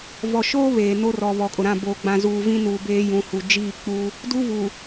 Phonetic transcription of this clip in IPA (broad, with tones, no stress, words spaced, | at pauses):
vɔ˨ʃoː˦ βeː˨no˦rɔ˨ βɔ˨kʼʊ˨ɾã˦˨ boː˨ɡ͡bã˨ zuː˨ vĩ˦nuː˨ beː˦ jũ˨hu˨ d͡ʒiː˦˨k͡puː˦ | du˦vu˨